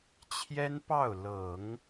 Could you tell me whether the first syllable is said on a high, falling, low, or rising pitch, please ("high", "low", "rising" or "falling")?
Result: high